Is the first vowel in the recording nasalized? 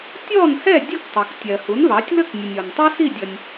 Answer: no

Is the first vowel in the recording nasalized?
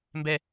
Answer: no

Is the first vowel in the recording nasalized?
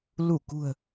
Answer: no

